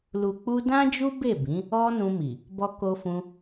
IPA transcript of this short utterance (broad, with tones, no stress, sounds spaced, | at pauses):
l u˨ k͡p u˧ d ã˦ d͡ʒ u˦ b e˦˨ b ĩ˨˦ | ɔ˧ n ũ˧ m i˨ | b ɔ˧ k o˧ f ũ˧